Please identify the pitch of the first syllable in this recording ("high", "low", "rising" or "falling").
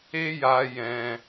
high